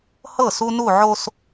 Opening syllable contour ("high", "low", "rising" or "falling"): falling